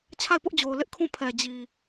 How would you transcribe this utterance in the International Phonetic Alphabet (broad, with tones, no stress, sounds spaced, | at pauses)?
t͡ɕʰ a˦˨ ɪ̯ p ʊ˦ ʔ d͡ʑ o˨ ʊ̯ l ɪ˦ ʔ kʰ ũ˦˨ pʰ ɛ˨ d͡ʑ i˨